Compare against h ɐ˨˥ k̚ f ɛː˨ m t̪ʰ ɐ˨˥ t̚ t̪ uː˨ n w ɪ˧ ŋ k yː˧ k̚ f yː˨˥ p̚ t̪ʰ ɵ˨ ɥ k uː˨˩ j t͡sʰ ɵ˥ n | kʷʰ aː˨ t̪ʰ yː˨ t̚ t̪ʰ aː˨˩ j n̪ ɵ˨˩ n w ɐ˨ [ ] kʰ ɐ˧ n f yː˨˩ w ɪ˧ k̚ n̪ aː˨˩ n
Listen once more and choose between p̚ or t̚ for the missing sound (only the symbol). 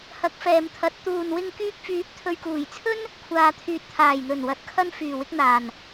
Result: t̚